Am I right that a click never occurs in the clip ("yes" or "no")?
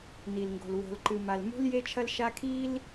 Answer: no